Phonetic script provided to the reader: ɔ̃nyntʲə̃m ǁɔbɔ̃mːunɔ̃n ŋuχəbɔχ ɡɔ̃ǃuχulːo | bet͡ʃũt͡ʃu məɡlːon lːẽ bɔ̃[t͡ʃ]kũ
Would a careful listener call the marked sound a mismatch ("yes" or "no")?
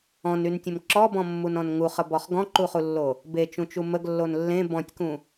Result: yes